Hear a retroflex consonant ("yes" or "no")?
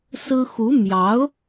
no